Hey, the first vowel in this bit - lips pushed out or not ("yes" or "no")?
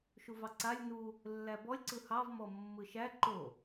yes